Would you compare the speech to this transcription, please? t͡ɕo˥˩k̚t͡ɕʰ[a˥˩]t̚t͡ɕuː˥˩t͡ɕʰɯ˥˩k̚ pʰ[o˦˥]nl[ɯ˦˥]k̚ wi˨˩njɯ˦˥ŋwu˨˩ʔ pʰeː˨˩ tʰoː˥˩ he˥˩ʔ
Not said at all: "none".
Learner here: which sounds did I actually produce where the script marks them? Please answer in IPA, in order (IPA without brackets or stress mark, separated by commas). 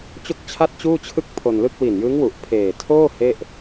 a˥˩, o˧, ɯ˥˩